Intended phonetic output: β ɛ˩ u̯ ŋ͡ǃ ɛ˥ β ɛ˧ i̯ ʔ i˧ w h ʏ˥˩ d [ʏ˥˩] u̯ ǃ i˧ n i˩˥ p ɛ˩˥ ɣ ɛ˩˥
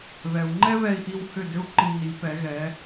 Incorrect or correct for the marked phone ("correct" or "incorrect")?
incorrect